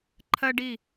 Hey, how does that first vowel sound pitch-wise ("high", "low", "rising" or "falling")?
high